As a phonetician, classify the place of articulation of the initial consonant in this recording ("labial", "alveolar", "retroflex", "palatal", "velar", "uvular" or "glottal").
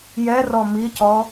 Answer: palatal